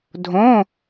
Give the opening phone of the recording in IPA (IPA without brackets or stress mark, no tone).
dʱ